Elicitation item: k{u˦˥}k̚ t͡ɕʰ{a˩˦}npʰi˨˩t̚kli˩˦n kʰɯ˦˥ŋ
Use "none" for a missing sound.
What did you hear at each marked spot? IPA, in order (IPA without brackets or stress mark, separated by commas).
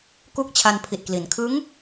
u˦˥, a˧